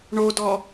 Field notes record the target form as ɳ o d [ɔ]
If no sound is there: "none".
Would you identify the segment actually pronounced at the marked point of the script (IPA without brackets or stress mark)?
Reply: ɔ